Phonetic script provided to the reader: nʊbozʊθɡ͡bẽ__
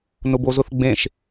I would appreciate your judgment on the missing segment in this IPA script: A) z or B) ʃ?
B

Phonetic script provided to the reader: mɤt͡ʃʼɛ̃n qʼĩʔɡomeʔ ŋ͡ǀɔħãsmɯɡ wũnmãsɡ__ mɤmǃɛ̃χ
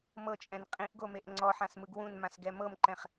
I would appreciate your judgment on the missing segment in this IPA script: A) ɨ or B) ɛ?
B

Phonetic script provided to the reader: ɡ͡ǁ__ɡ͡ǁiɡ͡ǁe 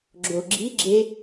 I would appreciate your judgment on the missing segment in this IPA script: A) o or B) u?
A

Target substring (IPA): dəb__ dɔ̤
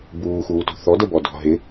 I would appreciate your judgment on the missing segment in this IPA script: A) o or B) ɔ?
B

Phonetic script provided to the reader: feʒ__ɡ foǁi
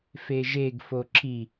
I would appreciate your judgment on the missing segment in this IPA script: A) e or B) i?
A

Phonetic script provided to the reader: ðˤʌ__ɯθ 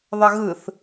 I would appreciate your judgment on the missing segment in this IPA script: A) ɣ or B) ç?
A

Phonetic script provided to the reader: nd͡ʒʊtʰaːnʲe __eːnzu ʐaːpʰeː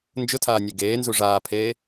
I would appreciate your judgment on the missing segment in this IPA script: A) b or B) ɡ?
B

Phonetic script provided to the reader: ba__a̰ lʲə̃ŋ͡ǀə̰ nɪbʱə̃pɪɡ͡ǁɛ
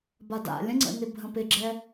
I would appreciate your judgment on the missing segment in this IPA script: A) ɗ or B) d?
B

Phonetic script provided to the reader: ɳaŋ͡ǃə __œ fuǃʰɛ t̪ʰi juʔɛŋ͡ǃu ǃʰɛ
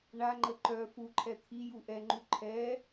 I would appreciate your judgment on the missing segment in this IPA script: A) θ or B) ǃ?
B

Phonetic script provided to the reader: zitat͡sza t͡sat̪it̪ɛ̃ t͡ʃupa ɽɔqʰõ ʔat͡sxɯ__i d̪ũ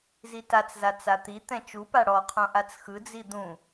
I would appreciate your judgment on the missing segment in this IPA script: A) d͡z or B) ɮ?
A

